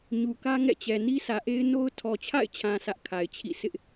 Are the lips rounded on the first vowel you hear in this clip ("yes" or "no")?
yes